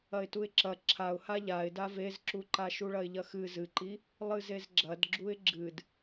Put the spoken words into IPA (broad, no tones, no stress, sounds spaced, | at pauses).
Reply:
ɐ ɪ̯ t u ɪ̯ ǁ ɐ ǁʰ a ʊ̯ h a ʎ a ɪ̯ d a v e z ǁ u ǃ a ʃ u ɭ ɐ ɪ̯ ʎ ɐ x ɨ z ɨ ǃ i | lˠ ɨ z e z ɡ͡ǁ ɐ d ɡ͡ǁ u ɪ̯ ɡ͡ǁ ɨ d